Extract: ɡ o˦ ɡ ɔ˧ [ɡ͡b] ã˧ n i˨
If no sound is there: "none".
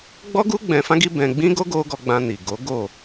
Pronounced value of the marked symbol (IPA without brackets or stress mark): ɡ͡b